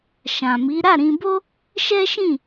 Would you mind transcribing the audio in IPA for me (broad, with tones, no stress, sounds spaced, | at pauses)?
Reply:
ʃ ã˨ m i˨˦ ɾ a˦˨ ɾ ĩ˧ b o˦ | ʃ ɛ˦ ʃ ĩ˦˨